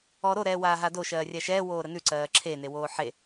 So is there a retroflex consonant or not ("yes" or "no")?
no